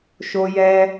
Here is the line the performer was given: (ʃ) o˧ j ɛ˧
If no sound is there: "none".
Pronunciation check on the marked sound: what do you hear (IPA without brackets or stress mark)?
ʃ